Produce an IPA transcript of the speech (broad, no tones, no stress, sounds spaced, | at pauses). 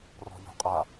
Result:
r ɔ̤ ʎ ɔ̤ qʼ a